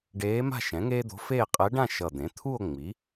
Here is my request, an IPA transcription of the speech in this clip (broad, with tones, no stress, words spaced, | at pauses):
ɖeː˧˥ma̤˥˧ʃɛ̃˩˥ ŋeː˥d̪o̤˧˥feː˥˧ qʼɛ˧˥ɖã˥˧ ʃʌ˨˩d̪ẽ˩˥t̪ʰu˥˧o̯ ŋ͡mi˩˥